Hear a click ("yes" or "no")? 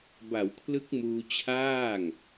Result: no